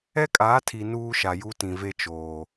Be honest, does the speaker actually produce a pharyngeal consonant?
no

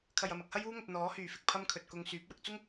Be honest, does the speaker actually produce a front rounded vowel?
yes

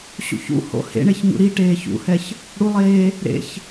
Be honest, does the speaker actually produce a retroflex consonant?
yes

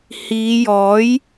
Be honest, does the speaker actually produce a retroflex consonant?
no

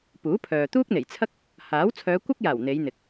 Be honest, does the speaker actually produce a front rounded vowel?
yes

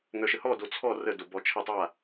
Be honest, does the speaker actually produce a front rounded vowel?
yes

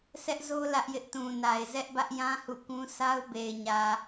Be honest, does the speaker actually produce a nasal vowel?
yes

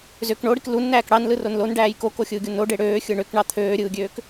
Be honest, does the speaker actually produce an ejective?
no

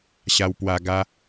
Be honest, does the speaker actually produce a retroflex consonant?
no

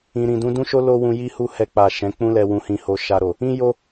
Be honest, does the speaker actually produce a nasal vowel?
yes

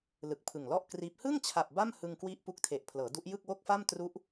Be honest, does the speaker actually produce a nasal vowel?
no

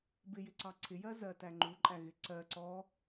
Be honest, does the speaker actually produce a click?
yes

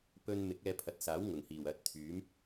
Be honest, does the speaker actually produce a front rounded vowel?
yes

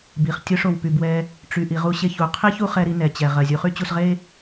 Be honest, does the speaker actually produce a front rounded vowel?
yes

